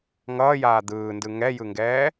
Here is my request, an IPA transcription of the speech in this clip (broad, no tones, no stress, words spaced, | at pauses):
ŋʌːjaː d̪ɯːndɯ ŋɛjɯŋɡɛː